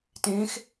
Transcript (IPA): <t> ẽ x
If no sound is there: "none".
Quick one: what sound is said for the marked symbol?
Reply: t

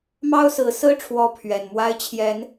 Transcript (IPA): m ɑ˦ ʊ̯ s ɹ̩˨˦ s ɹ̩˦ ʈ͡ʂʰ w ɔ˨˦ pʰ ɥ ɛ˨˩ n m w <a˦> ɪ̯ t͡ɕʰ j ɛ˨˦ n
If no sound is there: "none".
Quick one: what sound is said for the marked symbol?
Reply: a˦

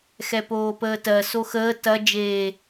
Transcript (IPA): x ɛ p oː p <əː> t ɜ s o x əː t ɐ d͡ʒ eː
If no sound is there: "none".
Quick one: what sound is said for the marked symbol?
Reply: əː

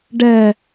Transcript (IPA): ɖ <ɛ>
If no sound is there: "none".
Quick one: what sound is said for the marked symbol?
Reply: ɛ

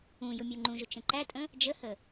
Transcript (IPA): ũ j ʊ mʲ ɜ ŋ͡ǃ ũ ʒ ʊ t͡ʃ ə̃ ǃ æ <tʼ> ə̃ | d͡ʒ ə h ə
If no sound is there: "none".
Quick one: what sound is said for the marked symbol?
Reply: tʼ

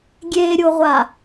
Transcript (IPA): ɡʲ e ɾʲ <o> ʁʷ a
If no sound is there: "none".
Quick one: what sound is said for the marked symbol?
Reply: o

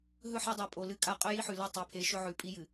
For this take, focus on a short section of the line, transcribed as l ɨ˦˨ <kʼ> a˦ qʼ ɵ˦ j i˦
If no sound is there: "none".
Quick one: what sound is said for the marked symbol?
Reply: kʼ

